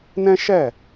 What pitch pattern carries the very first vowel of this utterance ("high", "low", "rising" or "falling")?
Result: high